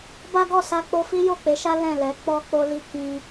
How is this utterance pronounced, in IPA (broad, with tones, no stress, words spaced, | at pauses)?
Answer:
ba˦ɡɔ˦˨sa˧k͡po˧ fi˦jo˦˨k͡pe˨˦ʃa˦ lɛ̃˦˨lɛ˨˦ k͡pɔ˧k͡po˧li˧ kĩ˧